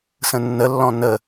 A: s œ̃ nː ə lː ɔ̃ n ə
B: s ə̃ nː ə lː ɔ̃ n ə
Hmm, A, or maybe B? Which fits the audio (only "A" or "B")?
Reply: B